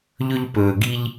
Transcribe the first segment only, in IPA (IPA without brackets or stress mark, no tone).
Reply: ʎ